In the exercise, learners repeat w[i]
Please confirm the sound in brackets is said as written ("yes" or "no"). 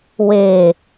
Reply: no